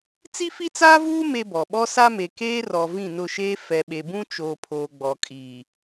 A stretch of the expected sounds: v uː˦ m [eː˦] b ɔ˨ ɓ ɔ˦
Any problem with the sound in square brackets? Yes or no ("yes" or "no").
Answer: yes